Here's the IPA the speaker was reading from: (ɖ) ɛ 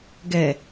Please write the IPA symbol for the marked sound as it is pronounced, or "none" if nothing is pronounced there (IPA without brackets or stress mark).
ɡ